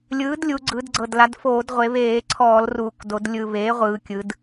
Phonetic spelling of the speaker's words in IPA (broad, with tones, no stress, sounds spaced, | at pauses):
lʲ ɯː˩˥ d lʲ u˩˧ ɡ͡ǀ ɯ˩˧ d ɡ͡ǀ ɤ˨˩ d l a˩˧ d f oː˧˩˧ d ʁʷ e˩˧ β eː˧˩˧ ǀʰ ɔː˧˩˧ l r uː˨˩ k d o˩˧ d lʲ ɯ˨˩ β eː˩˥ ʁʷ ɯː˩˧ kʲ ɯ˩˧ d